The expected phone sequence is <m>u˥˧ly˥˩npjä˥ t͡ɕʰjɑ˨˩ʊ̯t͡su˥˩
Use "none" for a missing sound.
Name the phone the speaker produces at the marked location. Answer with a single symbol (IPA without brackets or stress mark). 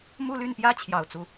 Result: m